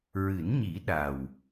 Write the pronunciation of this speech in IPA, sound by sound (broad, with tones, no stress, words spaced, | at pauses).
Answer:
ɹɨ˨˩˦nɲi˨˩˦ ɗa˨˩w